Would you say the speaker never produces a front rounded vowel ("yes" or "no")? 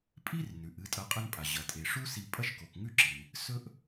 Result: yes